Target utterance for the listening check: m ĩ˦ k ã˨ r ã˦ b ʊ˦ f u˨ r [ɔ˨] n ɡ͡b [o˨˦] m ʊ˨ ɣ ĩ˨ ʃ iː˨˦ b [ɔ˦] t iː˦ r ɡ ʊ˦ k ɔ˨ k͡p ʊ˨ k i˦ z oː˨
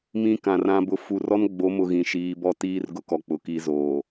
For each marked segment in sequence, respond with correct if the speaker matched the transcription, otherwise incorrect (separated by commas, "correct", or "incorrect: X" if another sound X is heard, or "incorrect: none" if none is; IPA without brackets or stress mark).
incorrect: ɔ˦, correct, correct